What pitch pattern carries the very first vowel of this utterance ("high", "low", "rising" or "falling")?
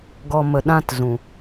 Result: low